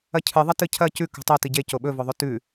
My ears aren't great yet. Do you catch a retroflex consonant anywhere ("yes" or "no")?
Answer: no